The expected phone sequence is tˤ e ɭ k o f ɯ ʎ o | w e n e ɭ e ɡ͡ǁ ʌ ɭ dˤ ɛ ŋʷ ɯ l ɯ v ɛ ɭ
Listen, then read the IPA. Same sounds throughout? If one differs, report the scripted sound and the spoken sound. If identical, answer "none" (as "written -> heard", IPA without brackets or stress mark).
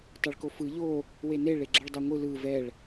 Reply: none